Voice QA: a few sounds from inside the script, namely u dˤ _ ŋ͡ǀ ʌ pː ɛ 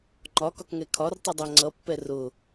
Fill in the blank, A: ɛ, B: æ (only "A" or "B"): B